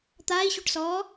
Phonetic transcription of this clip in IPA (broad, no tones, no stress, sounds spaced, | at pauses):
t̪ aː i̯ ɕ u ʈ s ɔː